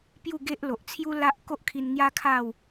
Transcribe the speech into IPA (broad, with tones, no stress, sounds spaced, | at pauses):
p j u˥˧ ɡ e˦ ʔ l o˨ ʔ t͡sʰ j u˦ l a˦ ʔ k o˦ ʔ kʰ i˧ n ŋ j a˦ kʰ a˥˧ w